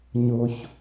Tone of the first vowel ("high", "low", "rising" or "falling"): high